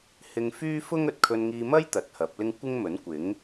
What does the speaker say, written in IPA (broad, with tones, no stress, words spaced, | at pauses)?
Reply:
hɪ˧ŋfyː˥fʊ˥ŋ ɵ˨t̚kʰɵ˧nŋiː˧mɐ˥j t̪ɐ˨˥t̚hɐ˨˥p̚lɪ˥ŋ kʷɪ˥ŋmɵ˨˥nkʷɪ˨˥ŋ